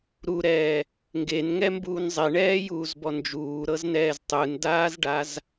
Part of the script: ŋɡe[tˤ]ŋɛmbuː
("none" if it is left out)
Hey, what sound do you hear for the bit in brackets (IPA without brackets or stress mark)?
n